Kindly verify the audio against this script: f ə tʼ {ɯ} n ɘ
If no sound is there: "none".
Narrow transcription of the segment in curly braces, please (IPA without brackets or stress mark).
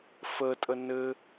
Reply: ə